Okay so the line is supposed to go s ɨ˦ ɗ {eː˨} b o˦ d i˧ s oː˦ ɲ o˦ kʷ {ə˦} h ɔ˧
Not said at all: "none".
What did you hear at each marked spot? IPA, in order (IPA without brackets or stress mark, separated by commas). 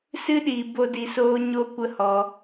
iː˨, ə˦